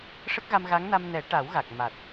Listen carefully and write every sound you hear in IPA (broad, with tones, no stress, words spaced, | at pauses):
ʂə˦˥k̚ɣa˧mɣa˧˥ŋna˧m nɛ˨˩˦ ʈa˨˩˦w ɣa˨˩k̚ ma˨˩t̚